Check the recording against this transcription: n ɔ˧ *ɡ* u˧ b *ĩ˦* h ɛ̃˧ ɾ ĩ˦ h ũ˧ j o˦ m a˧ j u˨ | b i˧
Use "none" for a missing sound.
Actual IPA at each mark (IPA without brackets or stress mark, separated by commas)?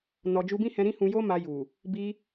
d͡ʒ, ĩ˦